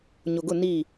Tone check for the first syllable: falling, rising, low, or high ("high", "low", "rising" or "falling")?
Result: low